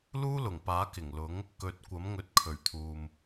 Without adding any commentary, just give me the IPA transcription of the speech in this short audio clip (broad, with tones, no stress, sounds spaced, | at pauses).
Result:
l uː˥ l ʊ˨˩ ŋ p aː˨˥ k ɪ˨˩ ŋ l ʊ˨˥ ŋ | k ɵ˨ t̚ kʷ ɐ˨˥ m ŋ ɵ˨˥ t̚ kʰ ɵ˨˩ ɥ t̪ʰ uː˨ m